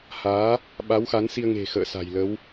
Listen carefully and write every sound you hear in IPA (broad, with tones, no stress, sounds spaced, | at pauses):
h aː˨˦ | ɓ a˨˦ w x a˨˦ n s i˧ ə̯ ŋ e̤˨˩ x ə̰ː˧˨ s a̤˨˩ j l ə˨˦ w